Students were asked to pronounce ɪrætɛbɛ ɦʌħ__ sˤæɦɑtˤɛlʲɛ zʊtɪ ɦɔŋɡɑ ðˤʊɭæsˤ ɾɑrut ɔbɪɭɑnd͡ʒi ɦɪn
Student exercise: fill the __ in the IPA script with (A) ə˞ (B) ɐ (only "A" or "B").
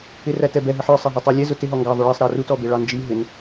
A